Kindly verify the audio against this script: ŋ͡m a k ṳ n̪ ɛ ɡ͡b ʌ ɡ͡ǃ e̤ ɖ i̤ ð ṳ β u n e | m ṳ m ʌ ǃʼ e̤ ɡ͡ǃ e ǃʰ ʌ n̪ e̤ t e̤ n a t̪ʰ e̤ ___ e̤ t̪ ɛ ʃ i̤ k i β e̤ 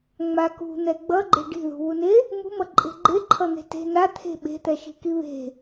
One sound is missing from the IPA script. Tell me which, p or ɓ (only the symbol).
ɓ